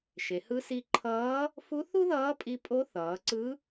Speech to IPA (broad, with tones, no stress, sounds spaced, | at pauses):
ʃ e˩˧ h ɯ˧˥ s i˧ ǃʰ ʌː˧˥ | f u˧˥ θ u˥ ð ʌː˧˥ pʼ i˧ pʼ o˧˥ θ ʌː˩˧ ǀ ɯ˧˥